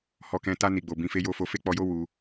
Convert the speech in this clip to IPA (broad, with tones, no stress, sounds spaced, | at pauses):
h ɔ˧ k ɛ̃˧ t a˧ n i˨ ɡ͡b o˨ b ĩ˧ f e˦ j o˦ f o˧ f e˦ k͡p ɔ˧ j o˦ w u˧